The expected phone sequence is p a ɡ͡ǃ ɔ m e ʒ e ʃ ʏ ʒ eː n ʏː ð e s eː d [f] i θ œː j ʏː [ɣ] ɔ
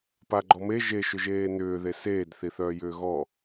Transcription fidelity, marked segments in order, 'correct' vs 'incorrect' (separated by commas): incorrect, correct